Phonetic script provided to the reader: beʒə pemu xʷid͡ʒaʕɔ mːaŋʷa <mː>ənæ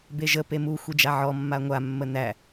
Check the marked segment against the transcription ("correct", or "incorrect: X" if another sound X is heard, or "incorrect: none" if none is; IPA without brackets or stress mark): correct